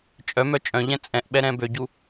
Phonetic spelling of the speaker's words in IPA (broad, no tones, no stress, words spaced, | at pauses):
t͡ʃʼœmœ t͡ʃʼœ̃ʎɛ̃ t͡sʼɛ̃ʔɓɛ ɾɛ̃bøɟu